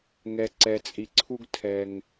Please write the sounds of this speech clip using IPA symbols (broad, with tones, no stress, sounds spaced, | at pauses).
ŋ ɛ˨ ǀ ɛ˨ t͡sʼ i˨ ǀʰ u˦ ɡ tʰ ɛ˨ ŋ